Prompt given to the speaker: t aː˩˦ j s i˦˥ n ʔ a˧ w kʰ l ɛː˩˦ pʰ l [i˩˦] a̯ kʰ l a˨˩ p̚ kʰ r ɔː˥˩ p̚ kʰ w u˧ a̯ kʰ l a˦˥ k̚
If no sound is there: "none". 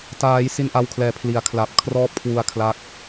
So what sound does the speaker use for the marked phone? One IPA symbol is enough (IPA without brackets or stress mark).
i˩˦